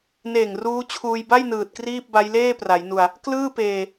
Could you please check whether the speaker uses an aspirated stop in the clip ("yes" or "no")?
yes